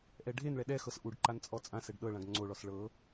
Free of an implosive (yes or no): no